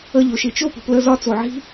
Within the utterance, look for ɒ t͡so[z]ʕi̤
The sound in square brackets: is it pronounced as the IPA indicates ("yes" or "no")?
no